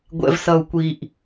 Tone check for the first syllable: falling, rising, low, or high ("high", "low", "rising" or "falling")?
low